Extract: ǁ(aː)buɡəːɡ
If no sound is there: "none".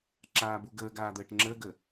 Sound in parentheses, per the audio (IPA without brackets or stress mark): aː